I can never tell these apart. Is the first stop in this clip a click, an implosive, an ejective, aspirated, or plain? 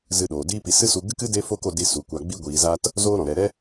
implosive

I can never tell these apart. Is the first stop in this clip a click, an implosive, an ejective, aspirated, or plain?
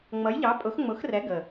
ejective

